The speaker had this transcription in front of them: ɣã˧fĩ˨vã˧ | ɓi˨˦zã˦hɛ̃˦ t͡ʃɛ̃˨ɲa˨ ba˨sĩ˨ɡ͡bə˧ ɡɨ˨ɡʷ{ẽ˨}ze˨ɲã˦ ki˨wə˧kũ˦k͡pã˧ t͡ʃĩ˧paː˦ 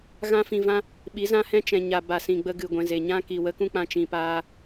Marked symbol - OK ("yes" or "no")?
no